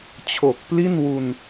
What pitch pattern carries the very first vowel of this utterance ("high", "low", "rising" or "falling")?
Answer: low